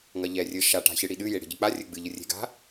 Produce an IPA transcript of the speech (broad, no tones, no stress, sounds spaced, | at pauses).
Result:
ŋ ɐ ʎ ɛ rʲ ɘ ʃ a ʈ a̤ ç ɨ ɽ i ɗ ɨ j e ɽ e̤ ɟ ɘ k͡p a rʲ ɘ ɡ͡b ɨ ʎ ɨ rʲ e̤ ɡ a̤